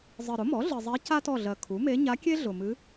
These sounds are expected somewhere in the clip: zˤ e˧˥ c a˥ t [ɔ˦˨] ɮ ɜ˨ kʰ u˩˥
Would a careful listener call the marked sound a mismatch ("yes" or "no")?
no